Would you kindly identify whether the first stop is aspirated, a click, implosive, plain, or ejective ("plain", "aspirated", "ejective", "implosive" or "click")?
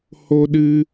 implosive